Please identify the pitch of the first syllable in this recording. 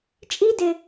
high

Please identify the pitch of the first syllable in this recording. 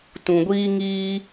low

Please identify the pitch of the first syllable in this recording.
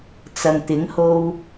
low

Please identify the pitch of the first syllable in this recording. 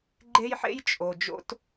high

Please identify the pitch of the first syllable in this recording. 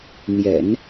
low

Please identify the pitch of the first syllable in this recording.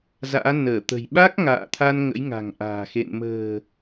rising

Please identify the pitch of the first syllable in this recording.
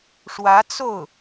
rising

